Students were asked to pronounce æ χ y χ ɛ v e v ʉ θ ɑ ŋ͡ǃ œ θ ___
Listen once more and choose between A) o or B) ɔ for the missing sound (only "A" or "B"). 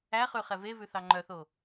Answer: A